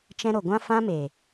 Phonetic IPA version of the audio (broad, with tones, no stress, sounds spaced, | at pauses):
t͡ʃ ɛ̃˧ ɾ o˨ ɡʷ ã˦ f ã˦ m e˨